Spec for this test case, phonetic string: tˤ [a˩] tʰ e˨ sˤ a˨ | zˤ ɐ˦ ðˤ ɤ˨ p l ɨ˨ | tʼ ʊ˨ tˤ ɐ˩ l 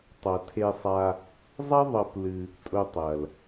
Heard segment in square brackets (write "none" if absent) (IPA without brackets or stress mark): ɐ˩